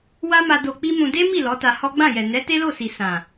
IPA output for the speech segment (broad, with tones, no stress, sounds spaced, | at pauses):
w a˦ m a˧ d o˧ k͡p i˦ m ũ˧ d e˦ m i˦˨ l ɔ˨˦ t a˧ h ɔ˦ ɡ͡b ã˦˨ j ɛ˨ n ɛ˨˦ t e˦ l o˦˨ s i˨ s ã˨